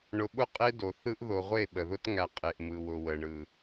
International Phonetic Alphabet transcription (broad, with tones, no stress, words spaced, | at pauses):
ɳʊ˨ɓʊ˦˨ qʼe˦ do˨θɯ˦ʔ ðo˨ʁʷe˦˨ ɓə˨ðʊ˦tŋæ˨ qʼe˨ʔmɯ˨wʊ˨ wə˨ɳɯ˨